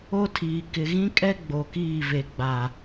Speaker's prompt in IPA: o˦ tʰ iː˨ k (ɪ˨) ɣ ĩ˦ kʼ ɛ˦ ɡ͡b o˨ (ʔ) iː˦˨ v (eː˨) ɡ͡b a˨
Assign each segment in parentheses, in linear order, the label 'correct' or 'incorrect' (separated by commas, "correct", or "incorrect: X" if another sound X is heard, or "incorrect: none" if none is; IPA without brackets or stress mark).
correct, incorrect: k, incorrect: e˨